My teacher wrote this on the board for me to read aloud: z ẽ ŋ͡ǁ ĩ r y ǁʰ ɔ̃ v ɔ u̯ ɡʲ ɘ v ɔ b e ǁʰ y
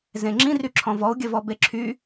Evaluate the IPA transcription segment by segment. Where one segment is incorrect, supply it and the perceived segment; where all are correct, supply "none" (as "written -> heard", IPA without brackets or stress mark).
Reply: none